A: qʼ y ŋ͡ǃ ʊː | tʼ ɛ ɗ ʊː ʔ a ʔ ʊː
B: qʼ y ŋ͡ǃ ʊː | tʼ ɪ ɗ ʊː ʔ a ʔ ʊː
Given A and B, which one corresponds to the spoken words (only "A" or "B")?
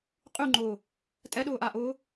A